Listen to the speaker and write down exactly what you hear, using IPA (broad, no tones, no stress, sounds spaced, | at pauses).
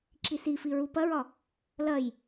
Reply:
ǁ i s i f i ɹ u p ɐ ɹ ɒ | l ɐ j